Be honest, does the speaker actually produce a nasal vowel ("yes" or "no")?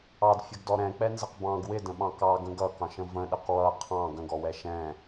yes